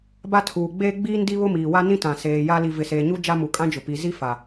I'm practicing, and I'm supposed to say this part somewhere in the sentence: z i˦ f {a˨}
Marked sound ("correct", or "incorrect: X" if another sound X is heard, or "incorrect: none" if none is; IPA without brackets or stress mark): correct